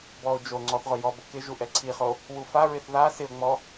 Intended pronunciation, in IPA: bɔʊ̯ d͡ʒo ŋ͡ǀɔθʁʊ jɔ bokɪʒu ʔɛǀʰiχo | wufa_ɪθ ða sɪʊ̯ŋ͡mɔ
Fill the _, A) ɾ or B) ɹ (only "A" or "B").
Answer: B